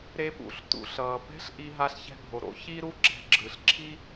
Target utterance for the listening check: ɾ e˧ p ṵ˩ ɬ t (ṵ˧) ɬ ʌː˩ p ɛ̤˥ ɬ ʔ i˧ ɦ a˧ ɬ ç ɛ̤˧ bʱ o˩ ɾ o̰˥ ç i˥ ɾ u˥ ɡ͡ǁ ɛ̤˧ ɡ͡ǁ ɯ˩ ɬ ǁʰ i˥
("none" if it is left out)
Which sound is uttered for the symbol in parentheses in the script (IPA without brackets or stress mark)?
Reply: ṵ˩